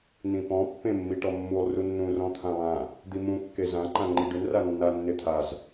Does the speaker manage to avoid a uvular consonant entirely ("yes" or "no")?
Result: yes